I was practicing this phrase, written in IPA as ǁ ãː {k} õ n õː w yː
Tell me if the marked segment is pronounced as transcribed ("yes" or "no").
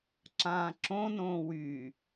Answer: no